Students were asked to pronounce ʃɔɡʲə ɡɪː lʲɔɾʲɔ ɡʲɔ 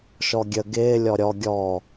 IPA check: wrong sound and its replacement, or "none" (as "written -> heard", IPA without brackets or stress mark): none